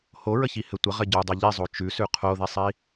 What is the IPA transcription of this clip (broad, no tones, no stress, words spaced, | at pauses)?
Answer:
hoɹəçihɘ tʷəʁɘ ɟodˤo ʎizˤo t͡ʃʉsʉ qʰoðisˤi